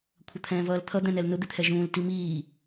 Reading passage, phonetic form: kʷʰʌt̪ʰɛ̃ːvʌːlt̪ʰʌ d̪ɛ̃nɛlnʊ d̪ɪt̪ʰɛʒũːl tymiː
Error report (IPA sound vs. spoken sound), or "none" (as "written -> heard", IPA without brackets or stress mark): y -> i